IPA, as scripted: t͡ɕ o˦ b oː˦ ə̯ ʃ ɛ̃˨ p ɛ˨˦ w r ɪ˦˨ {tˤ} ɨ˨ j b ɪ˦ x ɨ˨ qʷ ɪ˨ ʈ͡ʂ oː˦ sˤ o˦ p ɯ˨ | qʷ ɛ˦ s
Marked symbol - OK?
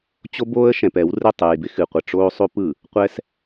yes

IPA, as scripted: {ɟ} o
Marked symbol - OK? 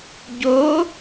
yes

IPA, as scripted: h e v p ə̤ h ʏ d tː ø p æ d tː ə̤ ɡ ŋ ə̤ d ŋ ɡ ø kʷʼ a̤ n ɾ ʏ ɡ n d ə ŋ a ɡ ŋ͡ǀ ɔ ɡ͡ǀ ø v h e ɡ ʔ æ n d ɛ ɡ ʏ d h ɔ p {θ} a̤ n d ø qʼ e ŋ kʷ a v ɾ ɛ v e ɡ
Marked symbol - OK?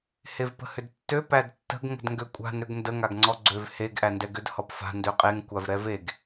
no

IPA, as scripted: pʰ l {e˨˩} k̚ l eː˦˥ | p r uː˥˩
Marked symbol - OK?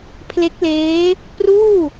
no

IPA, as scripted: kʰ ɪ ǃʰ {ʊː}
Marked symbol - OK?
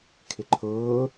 yes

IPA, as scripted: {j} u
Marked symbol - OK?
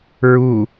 no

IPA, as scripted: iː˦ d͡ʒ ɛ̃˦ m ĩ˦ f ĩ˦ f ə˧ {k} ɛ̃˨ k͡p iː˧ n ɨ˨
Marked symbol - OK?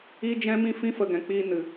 no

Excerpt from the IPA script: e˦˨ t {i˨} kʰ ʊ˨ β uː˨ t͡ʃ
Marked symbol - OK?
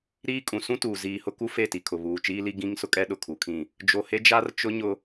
yes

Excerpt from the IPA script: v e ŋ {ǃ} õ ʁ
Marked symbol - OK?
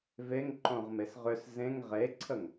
yes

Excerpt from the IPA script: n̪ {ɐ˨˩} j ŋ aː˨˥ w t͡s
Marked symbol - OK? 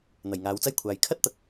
yes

